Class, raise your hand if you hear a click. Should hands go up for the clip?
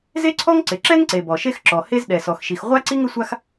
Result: yes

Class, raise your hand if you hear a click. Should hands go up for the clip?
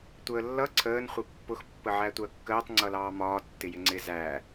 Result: yes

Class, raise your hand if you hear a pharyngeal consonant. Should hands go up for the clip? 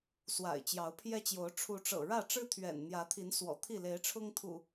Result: no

